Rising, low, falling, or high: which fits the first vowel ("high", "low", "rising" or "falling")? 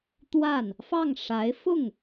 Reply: falling